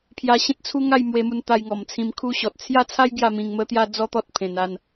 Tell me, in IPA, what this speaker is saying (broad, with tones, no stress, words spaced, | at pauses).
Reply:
pʰja˧ɕẽ˦t̚t͡sʰu˦ŋa˥˧j mwe˧mu˧nt̪a˧j ŋɔ˨˩mt͡sʰĩ˧m kʰu˦ɕɔ˨t̚ t͡sʰja˥˧t͡sʰa˦j ɡja˥˧mĩ˧ŋ mə˦t̪ja˦ d͡zɔ˦t̪ɔ˦t̚ pʰẽ˧na˥˧n